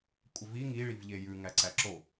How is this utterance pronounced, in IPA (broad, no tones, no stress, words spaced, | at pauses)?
kʷʼəvi ŋiɭiv ʎejʉ ŋæǀæǁo